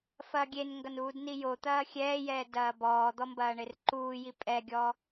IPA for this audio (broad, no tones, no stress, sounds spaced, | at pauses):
f ɐː ɡʲ e n ŋ ɡ ɐ n uː d n i j o t̪ ɐː xʲ ɛː j ɛː d ɐː b ɔː d̪ ɔ m b ɐː ɳ e r ǃ uː j i pʼ ɛ ɡʲ ɔ